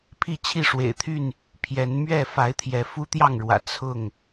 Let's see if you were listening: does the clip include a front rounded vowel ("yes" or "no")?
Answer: yes